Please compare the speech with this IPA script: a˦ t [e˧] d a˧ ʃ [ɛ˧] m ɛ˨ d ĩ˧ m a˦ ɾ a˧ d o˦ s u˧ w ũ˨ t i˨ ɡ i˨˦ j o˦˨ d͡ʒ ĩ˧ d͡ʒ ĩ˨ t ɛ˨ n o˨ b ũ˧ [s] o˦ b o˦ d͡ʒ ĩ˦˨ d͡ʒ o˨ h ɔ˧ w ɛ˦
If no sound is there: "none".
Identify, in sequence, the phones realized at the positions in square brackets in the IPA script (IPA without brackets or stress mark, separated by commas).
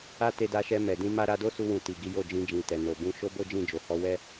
e˧, ɛ˧, ʃ